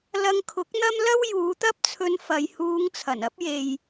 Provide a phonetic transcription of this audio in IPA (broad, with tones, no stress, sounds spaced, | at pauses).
l ɐ˧ ŋ kʰ ʊ˨˥ k̚ n̪ ɐ˥ m l ɐ˥ w j uː˨˧ t̪ ɐ˥ p̚ t͡sʰ ɵ˧ n f ɐ˨ j h uː˨˧ ŋ t͡sʰ ɐ˨˩ n ɐ˨˥ p̚ j e˨ j